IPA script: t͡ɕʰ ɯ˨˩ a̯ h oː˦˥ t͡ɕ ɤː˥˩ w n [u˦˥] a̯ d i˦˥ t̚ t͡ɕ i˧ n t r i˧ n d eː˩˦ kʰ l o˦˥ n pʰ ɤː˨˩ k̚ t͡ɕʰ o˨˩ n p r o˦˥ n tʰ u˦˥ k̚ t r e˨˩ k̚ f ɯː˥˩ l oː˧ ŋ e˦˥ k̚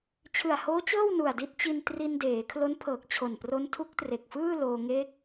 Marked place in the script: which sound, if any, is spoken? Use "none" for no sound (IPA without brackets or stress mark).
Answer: u˨˩